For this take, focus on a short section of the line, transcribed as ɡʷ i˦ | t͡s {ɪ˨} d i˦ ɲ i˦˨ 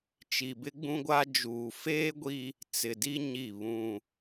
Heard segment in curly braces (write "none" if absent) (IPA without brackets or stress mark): ɪ˨